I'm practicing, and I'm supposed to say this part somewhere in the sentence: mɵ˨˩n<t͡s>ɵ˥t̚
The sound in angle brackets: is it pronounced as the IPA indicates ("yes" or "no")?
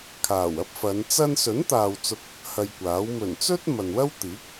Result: yes